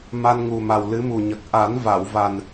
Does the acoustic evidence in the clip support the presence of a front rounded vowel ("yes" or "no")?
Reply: no